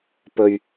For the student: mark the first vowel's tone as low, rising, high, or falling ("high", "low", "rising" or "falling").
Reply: low